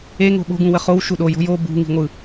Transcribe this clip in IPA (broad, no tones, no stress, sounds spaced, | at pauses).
e ŋ o̤ ɓ o̤ ɡ ũ w ə χ o w ʃ u ɗ o j o̤ j o b ṳ ŋ i̤ ŋʷ ɯ